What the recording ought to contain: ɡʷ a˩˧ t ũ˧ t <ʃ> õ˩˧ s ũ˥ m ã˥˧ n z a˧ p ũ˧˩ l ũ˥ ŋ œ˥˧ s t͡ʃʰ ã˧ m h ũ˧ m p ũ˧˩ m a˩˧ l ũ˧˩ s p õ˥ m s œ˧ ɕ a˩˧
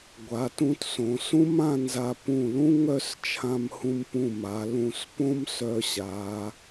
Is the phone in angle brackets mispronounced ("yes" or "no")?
yes